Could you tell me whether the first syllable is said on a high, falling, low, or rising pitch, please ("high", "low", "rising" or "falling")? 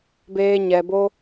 high